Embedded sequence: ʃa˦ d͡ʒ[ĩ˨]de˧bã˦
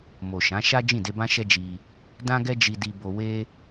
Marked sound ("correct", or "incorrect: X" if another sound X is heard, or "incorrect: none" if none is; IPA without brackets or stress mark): incorrect: ĩ˦˨